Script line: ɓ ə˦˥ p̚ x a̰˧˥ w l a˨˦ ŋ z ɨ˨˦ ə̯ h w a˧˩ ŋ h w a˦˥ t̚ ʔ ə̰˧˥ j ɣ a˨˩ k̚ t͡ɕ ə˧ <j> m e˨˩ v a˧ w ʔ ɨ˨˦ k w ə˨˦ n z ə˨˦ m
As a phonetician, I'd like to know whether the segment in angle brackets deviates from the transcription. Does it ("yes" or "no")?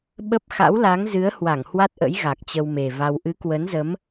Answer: yes